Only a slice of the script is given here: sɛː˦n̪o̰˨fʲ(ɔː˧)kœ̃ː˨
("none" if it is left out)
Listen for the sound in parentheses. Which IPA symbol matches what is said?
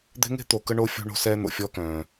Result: ɔː˦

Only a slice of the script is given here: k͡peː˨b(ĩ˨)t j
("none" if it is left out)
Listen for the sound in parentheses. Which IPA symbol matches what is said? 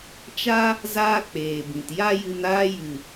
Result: ĩ˨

